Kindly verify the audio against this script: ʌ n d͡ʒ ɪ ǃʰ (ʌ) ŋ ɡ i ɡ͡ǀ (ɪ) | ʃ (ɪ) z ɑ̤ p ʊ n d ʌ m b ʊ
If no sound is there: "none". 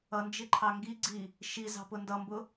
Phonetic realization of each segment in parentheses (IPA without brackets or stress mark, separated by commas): ɑ, i, i